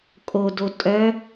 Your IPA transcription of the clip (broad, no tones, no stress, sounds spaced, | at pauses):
kʼ o d o tʼ œ